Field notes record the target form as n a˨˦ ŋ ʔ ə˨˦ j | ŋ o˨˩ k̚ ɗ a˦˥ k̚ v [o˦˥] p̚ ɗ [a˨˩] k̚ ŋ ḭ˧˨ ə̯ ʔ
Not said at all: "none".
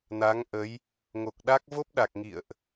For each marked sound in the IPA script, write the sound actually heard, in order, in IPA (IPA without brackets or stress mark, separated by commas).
o˦˥, a˨˩